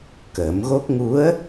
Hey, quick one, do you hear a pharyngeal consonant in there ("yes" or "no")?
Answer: no